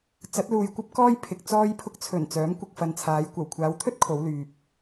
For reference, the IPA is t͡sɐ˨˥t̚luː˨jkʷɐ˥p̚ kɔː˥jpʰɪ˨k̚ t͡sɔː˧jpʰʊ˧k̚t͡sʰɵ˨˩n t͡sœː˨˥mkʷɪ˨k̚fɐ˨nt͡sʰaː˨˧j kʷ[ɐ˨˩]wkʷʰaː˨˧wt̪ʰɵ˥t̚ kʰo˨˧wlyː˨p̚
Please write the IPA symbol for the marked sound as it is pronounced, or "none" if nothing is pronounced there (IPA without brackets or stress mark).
ɐ˨˩